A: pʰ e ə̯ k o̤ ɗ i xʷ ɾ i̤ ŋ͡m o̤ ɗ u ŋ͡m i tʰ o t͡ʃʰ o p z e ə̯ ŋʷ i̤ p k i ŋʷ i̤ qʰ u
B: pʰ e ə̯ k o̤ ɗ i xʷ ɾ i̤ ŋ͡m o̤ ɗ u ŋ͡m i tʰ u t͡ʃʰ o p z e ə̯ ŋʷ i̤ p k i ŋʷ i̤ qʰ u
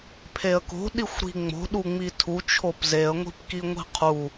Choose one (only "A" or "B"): B